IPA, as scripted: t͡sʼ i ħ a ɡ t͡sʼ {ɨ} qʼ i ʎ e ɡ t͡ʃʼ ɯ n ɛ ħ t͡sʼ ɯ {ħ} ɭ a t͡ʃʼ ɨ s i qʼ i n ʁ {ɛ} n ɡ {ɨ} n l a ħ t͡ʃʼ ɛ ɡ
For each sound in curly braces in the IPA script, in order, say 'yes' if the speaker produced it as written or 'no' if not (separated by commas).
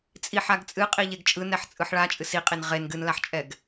yes, yes, no, yes